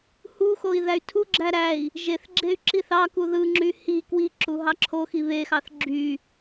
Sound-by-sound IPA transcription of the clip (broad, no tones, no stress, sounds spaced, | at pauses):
h u x o i̯ ð æ y̯ tʰ u ɡ͡ǁ æ ɾ æ i̯ | ʒ e θ ɡ͡ǁ e y̯ ǁ i θ ɑ k u ð ɯ ŋ͡ǁ y h i k w i ǁ u ɦ ɑ ǁʰ o x i β e x ɑ θ ɡ͡ǁ y